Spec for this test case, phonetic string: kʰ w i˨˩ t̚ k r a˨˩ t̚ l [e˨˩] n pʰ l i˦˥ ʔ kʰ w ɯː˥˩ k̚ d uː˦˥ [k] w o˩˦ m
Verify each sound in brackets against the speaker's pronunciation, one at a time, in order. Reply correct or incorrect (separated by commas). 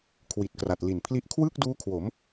incorrect, incorrect